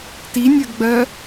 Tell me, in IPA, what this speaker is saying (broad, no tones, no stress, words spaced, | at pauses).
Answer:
tinʲɜɡɡ͡bɜ